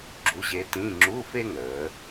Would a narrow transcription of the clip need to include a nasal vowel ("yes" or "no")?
yes